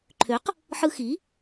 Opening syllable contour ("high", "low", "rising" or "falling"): rising